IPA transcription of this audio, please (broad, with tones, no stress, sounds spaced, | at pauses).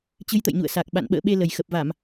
t͡ɕ ɨ˨˦ j t̪ ə̰˧˨ j ɲ ṵ˧˨ ə̯ s a˨˩ k̚ ɓ a̰˧˨ n ɓ ə̰ː˧˨ ɓ e˧ l ə˨˩ j x ə˨˩ p̚ v a˧˩˨ m